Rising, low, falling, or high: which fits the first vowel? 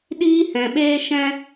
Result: high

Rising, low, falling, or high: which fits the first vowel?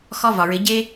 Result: high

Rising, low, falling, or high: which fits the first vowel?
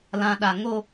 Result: low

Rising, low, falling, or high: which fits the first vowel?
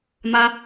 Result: high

